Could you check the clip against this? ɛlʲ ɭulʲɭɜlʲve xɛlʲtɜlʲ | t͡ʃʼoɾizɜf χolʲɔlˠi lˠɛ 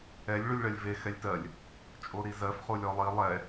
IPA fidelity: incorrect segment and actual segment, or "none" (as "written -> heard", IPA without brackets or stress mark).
none